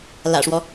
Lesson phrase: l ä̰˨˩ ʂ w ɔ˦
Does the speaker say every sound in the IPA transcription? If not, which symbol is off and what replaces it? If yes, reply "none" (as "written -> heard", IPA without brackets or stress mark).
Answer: none